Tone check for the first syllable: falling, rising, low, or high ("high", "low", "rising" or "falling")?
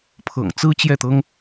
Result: low